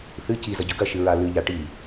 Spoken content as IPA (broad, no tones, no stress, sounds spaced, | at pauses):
θ ɨ c i z ɐ ɟ ɵ ɡ ɐ ʃ ɨ ɹ a l ɨ ʎ a ʈ i